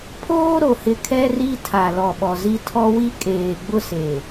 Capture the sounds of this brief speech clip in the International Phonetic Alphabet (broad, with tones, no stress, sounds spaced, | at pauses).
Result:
pʰ oː˦ ɾ o˨ h ɪ˨ kʰ ɛ˦ r i˦ tʰ a˨ l ɔ˨ ɓ ɔ˨ z i˦ tʰ ɔ˦ w i˦ kʼ eː˨ ɡ͡b ʊ˦ s e˨